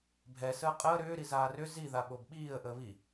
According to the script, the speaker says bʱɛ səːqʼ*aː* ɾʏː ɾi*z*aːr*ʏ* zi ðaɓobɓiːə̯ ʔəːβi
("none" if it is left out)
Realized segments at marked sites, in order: əː, z, ʏ

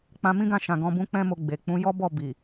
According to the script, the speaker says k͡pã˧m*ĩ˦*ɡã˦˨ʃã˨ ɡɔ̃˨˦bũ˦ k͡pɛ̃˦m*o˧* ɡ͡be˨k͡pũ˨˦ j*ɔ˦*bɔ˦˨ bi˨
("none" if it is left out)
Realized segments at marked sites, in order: ĩ˦, o˧, ɔ˦

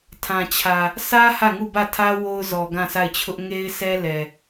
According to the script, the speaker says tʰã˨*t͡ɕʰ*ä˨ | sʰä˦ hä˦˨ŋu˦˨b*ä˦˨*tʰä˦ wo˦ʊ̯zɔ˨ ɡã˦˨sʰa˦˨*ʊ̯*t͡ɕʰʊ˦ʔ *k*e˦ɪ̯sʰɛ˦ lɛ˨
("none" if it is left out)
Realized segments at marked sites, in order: t͡ɕʰ, ä˦˨, ɪ̯, ŋ

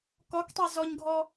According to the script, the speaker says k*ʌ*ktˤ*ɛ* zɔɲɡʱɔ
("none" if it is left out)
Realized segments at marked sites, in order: ɔ, ɛ

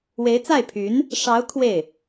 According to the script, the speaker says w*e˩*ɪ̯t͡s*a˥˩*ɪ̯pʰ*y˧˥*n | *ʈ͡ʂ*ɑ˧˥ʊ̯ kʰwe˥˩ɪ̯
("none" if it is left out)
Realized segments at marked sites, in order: e˧˥, a˥˩, y˧˥, ʂ

